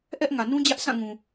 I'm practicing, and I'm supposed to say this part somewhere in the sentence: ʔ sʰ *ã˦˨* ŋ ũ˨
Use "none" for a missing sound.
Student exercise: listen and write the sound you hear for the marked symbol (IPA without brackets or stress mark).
ã˦˨